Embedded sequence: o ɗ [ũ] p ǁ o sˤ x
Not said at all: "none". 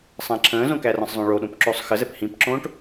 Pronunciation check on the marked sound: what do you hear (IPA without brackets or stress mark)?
õ